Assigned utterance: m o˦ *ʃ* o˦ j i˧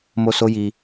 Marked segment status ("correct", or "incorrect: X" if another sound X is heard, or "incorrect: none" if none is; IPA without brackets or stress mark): incorrect: s